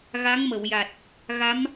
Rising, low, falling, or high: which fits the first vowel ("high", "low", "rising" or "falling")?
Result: rising